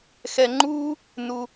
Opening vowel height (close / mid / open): mid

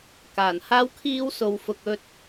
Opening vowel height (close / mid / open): open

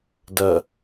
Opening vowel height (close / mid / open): open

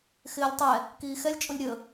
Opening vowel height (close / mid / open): close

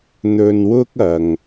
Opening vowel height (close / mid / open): mid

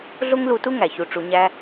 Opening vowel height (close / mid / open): mid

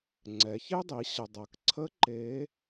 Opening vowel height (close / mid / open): mid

